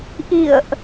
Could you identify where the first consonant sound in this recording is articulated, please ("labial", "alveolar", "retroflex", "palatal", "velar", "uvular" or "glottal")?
glottal